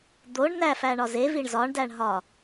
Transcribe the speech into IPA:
d̪ o ɳ n æ f æ ɳ ɒ z e v i ɳ z ɒ ɳ d æ ɳ ɦ ɒ

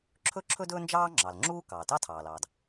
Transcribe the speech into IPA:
ǁʰ ɵ˥ ǁʰ ɵ˥ d ɵː˥ n d͡ʒ ɑː˥ ŋ͡ǁ ɑ˩ l ŋ͡ǁ uː˥ k ɑː˩ t ɑ˥ tʰ ɑː˩ l ɑː˩ d

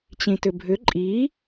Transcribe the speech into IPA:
t͡ɕ ĩ t ʏ bʱ ʏ ǃʼ i

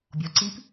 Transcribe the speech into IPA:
bʲ ɔ ǀ i p

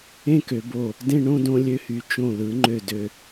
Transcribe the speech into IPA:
ẽ˥˧ k ø˩˧ b o˧˩ | d ẽ˥˧ ɳ õ˥˧ d õ˧ lʲ ø˧ h y˩˧ t͡ʃ õ˧˩ l ɯ˩˧ ŋ͡ǃ ø˧˩ d ø˧˩

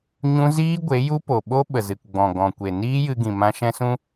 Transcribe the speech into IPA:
ɲ ũ˦ z iː˦ ɡʷ e˨˦ j u˦ p o˨ ɓ o˦ ɓ ə˨ z ɨ˨ k ɡ͡b ɔ̃˨ ɡ ɔ̃˨ kʷ e˨ n iː˦ j ɨ˧ ɡ ĩ˨ m ã˧ ʃ ɛ̃˧ s ũ˧

